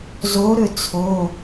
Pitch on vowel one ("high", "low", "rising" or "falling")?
rising